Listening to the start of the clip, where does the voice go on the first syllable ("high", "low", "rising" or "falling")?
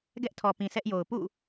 high